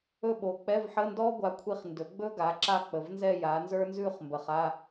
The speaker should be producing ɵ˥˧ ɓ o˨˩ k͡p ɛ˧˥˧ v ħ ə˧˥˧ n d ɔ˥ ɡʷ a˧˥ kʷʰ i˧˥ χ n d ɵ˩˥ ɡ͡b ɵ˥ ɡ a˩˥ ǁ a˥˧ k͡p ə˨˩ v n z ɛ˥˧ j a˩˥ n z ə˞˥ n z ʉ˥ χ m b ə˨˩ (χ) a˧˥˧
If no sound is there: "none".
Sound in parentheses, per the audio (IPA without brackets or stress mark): χ